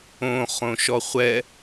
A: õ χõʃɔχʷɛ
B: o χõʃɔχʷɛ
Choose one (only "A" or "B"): A